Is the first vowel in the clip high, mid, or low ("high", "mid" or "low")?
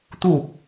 high